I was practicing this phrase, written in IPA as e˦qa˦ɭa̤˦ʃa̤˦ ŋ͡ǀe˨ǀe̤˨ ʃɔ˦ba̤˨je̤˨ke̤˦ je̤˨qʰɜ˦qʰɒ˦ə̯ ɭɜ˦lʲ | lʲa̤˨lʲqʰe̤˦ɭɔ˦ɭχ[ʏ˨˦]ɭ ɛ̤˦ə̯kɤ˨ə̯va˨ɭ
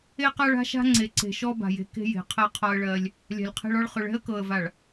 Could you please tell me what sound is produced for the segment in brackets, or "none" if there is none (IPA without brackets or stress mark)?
ʏ˨˦